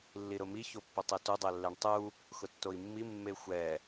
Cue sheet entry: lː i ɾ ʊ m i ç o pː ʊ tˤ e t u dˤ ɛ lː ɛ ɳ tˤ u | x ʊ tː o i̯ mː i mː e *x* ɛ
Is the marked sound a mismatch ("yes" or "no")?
yes